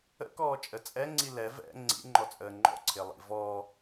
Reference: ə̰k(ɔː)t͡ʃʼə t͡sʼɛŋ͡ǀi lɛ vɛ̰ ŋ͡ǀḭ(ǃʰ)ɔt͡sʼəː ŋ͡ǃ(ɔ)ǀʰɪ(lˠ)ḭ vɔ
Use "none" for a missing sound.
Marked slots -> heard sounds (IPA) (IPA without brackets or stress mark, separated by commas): ɔː, ŋ͡ǃ, ɔ̰, lˠ